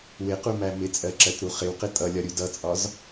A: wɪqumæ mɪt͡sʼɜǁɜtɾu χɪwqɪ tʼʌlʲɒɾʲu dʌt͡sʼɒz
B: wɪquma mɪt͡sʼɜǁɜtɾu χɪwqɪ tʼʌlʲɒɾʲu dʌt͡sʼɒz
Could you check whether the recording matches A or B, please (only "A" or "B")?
A